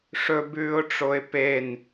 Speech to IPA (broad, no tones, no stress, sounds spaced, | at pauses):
ʂ ɵ b ʉː ʊ̯ ʈ͡ʂ o ɪ̯ p e n